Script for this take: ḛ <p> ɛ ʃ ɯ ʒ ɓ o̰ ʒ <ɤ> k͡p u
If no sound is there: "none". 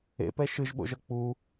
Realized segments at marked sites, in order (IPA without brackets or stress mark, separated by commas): p, ɤ